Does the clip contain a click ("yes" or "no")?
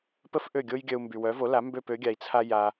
no